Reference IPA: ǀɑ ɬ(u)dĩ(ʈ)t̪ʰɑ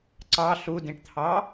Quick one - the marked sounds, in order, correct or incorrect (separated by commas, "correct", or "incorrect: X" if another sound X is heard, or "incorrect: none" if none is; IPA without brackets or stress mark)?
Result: correct, correct